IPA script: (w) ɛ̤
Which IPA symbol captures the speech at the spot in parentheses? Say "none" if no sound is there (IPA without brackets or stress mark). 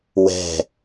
w